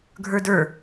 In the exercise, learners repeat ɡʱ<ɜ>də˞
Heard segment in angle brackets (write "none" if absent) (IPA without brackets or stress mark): ə˞